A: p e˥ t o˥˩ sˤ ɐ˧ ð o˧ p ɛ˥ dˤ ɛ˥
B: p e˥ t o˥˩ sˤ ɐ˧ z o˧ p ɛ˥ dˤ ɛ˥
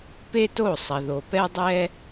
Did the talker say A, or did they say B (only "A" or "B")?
A